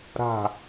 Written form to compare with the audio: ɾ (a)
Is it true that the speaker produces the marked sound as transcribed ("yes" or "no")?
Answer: no